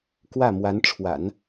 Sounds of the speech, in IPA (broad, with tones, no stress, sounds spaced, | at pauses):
k w ä˥˩ m w a˧˥ n ʈ͡ʂʰ w a̰˨˩˦ n